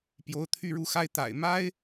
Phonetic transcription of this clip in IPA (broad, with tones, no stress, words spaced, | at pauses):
pjo˧˥ʊ̯t̪ʰy˥˧ɻu˥˩xa˥ɪ̯ t̪a̰˨˩ɪ̯ma˥ɪ̯